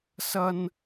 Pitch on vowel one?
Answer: high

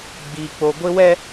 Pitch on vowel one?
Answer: high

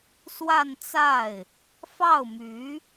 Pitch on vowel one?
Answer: falling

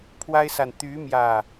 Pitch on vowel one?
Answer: high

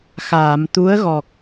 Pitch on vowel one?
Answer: low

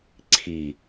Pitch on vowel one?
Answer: low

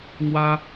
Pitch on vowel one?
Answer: high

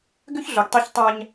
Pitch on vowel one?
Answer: high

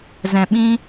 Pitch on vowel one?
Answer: low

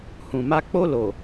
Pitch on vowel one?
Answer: low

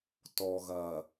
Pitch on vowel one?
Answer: low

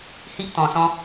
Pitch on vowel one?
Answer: high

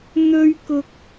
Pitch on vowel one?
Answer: high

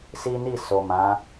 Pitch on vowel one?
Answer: high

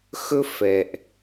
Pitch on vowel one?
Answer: high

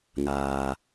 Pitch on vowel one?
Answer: low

